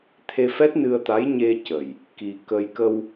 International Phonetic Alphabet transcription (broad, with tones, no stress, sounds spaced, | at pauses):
t̪ʰ e˧ f ɛ˦˥ t̚ n ɨ˧ ə̯ t̪ a˧˥ j ɲ e˧ c ə˨˩ j | k i˧ k ə˧ j k ə˧ w